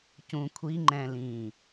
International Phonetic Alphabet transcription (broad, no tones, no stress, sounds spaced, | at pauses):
c ũ kʷʰ i ŋ͡ǃ ɛ̃ l ĩː